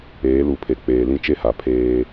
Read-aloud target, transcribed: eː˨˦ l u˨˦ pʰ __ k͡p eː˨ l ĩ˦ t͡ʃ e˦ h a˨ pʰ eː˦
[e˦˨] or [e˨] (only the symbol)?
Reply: e˨